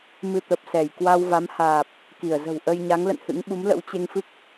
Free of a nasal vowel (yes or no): yes